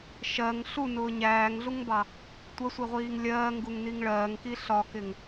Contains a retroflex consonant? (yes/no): yes